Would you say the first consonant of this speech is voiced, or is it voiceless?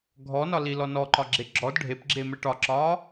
voiced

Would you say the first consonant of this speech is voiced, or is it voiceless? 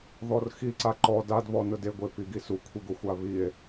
voiced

